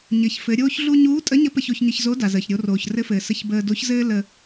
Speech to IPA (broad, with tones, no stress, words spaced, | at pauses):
ɲɘ˩˧çfɘ˩˧ ɾʲoː˥çɮu˥ ɲuː˧˥tʼə˧˥ɲə˧˥ pə˧ço˧çɲə˧çzo˧˥ da˩zəː˩ç ɾʲo˩˧ roː˩çrɘ˧˥fɘː˩ sə˧çbəː˧do˧˥çzɘː˥ lə˧